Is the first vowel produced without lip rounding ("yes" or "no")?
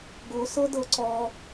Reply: no